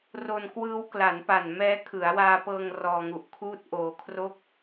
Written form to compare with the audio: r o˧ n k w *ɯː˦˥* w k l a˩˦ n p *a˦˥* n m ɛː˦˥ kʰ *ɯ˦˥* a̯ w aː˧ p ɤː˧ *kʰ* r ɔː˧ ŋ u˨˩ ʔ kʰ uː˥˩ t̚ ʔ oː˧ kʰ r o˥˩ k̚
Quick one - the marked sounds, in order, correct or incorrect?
correct, incorrect: a˨˩, incorrect: ɯ˩˦, incorrect: ŋ

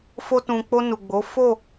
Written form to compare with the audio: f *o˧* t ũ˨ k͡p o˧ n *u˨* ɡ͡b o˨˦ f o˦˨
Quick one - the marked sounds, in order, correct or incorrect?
correct, correct

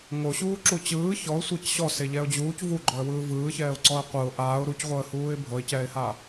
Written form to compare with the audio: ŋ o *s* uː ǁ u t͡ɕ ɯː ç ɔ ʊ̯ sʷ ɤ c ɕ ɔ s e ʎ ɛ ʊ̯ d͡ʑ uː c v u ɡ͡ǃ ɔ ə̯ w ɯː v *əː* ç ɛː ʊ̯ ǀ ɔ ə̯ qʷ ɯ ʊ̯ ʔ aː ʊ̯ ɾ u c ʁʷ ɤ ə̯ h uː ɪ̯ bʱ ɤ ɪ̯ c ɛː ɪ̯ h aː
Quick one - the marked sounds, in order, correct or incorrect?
incorrect: ɕ, incorrect: ɯː

